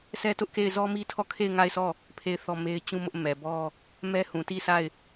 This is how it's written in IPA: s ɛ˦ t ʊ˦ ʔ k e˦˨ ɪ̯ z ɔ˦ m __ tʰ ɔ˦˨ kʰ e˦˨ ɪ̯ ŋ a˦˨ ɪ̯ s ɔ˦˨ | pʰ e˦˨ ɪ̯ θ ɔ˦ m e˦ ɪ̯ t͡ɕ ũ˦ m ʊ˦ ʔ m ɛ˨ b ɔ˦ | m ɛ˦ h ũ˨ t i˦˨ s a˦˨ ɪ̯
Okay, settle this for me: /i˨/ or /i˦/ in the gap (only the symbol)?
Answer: i˦